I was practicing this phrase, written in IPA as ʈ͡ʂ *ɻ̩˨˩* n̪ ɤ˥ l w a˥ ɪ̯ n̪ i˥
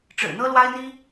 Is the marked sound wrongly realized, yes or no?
no